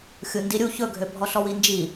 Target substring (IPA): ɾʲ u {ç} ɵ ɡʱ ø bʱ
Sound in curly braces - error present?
no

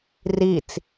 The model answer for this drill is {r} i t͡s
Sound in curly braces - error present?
no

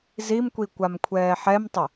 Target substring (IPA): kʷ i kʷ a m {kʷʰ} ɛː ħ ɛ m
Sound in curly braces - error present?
no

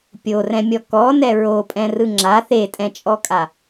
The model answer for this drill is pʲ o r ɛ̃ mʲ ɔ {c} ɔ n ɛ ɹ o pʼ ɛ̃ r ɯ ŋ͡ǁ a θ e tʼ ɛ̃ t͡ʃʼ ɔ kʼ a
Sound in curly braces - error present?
yes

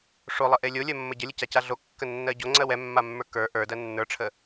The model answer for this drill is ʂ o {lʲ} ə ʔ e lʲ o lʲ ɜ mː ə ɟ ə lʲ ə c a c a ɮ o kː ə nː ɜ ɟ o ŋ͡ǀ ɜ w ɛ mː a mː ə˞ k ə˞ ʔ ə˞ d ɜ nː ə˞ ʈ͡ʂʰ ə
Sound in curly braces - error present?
yes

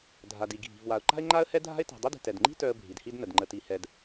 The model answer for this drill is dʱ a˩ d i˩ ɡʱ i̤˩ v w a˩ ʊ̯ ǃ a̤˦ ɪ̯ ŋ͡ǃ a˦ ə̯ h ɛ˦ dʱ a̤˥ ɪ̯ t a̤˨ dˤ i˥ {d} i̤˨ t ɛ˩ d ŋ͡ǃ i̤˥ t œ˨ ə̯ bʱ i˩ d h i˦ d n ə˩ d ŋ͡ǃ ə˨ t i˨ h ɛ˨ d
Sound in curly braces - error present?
no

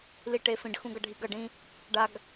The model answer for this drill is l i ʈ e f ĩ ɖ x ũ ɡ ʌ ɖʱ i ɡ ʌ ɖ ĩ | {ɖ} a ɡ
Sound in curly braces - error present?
no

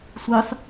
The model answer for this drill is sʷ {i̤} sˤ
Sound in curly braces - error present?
yes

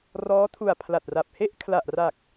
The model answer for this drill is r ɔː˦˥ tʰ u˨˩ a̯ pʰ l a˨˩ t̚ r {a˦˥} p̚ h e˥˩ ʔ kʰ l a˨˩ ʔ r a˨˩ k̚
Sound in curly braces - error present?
yes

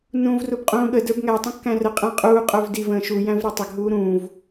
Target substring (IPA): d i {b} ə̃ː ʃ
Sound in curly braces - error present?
yes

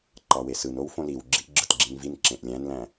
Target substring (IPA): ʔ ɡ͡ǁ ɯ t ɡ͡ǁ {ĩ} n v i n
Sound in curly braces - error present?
no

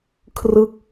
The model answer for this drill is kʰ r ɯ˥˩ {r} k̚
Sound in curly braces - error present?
yes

